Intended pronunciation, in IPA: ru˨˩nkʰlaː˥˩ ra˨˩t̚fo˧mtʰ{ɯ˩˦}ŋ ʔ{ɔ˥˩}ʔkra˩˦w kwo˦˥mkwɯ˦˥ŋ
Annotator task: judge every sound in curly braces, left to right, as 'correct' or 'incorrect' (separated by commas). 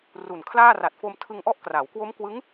incorrect, correct